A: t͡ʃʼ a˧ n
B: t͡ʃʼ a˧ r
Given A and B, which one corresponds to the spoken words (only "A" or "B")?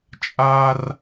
B